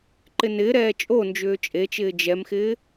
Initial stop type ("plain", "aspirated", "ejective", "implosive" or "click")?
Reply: click